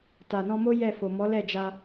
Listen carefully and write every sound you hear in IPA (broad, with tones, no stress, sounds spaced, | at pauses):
t a˨ n ɔ̃˧ m o˦ j ɛ˦˨ f o˨ m ɔ˨˦ l ɛ˦˨ d͡ʒ a˧